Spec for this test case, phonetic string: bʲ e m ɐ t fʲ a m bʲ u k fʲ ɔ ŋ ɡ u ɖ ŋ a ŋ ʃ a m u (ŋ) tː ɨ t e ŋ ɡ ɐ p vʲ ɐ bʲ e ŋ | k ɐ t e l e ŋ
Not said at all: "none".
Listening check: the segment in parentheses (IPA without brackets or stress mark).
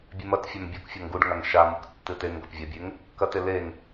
k